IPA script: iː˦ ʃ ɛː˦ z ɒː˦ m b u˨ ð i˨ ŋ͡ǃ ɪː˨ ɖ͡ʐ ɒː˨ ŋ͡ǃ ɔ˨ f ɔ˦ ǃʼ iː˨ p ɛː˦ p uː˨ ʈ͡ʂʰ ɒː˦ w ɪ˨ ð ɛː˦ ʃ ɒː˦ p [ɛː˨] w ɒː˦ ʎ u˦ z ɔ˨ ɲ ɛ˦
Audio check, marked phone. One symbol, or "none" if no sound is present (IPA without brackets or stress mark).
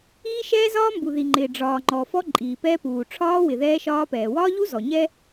ɛː˨